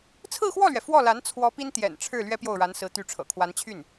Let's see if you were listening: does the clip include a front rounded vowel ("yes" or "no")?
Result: yes